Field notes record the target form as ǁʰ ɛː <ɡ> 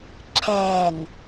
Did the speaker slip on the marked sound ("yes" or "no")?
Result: yes